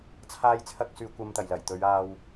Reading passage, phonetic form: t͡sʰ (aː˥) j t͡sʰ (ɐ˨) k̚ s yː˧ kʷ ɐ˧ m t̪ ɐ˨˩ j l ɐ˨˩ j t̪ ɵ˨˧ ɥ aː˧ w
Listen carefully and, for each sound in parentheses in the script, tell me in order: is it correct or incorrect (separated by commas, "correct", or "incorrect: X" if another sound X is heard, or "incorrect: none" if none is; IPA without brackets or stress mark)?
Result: correct, incorrect: ɐ˥